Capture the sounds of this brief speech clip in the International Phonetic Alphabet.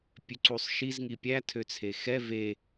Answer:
pʲ ø ǀ u sˤ ʃ i z ŋ i pʲ æ tʰ ø t͡sʰ e x ɛ v e

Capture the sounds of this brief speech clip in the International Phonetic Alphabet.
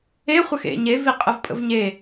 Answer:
e χʷ ə x ḛ ɲ e v i qʼ ə v pʼ ə̰ v ɲ e

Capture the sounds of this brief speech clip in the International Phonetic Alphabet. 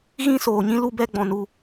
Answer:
ɣ ĩ˦ s oː˨ ɲ ĩ˦ l u˦ b ɛ˦ ɡ͡b ɔ̃˧ n u˧

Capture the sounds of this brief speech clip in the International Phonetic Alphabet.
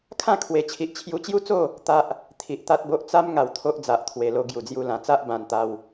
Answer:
kʰ ã˥˧ kʰ w e˨˩ t͡ɕʰ i˨ ʔ t͡ɕʰ j u˧ t͡ɕ j u˦ t͡s o˥˧ | t̪ a˦ ʔ | t̪ʰ i˨ ʔ t̪ a˦ t̚ b o˦ ʔ t͡s a˦ m ŋ a˧ w t̪ʰ o˦ ʔ d͡z a˨ ʔ t̪ʰ w e˨˩ l o˧ ɡ j u˨˩ d͡z j u˧ l ã˨˩ t͡s a˦ ʔ b ã˧ n t̪ a˧ w

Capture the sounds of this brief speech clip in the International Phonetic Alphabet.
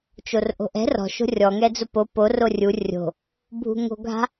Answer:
t͡ʃ o r ʔ o̤ ʔ ɛ̤ r ɔ̤ ʃ o̤ rʲ ɔ ŋ ɛ d͡z ʊ p o p o r o rʲ u rʲ o̤ | bʱ ṳ ŋ o̤ ɡʱ a̤

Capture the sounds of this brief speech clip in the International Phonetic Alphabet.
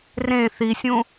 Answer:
r ẽ θ i sʲ ũ

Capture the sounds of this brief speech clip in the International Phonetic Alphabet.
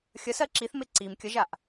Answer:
xʲ ə s ɜ ǁ i θ m e ǀ i m kʲ ə ʒ a ʔ

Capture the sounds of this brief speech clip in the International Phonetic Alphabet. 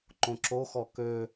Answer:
ǃ õ ǁ o x ɔ k ø

